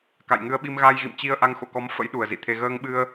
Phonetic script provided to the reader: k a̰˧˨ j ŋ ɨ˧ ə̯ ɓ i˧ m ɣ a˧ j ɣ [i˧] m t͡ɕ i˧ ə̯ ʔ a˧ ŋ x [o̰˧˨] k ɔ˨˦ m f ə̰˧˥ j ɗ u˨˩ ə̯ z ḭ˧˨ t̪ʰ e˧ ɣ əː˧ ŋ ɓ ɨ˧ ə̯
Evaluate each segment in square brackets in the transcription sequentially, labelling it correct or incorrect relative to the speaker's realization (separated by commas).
incorrect, correct